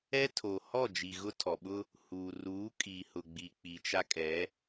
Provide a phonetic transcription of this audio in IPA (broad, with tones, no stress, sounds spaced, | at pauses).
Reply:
ɛ˦ tʰ o˨ h ɔ˦˨ d͡ʒ i˨ ɣ ʊ˦ tʰ ɔ˨ ɓ ʊ˦ | h uː˨ r uː˨˦ kʼ i˨ h ʊ˨ ɡ͡b i˨ k͡p i˨ t͡ʃ a˦ kʼ ɛ˨˦